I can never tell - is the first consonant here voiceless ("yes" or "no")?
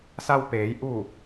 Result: yes